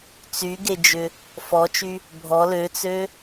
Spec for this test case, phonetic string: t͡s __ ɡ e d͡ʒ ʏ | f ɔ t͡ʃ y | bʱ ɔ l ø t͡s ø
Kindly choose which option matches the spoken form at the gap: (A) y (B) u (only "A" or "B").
A